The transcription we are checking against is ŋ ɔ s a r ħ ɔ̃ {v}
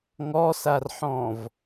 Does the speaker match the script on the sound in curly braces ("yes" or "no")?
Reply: yes